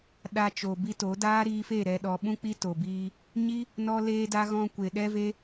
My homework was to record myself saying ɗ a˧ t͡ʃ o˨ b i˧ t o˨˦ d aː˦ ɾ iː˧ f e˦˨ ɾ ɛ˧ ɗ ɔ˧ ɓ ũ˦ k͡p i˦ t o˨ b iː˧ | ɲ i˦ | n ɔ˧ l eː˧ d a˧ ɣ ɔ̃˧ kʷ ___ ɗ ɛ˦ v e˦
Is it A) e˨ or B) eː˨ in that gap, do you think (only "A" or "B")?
A